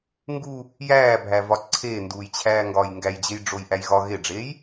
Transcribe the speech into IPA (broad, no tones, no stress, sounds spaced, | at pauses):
ŋ ɡ u | j æː bʱ æ v ɒ ǀʰ eː n d uː j t͡ɕʰ æː ŋ ɡ ɒː j ŋ ɡ æ j d͡ʑ e j ɖ͡ʐ o j ʔ æ j ɣ ɒ ɣ e ɖ͡ʐ eː j